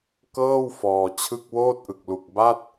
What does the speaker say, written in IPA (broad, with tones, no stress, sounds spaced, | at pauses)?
k ɤː˥˩ w f ɔː˧ t͡ɕʰ ɯ˥˩ k̚ w oː˥˩ t̚ ʔ ɯ˨˩ k̚ l u˨˩ k̚ b a˥˩ t̚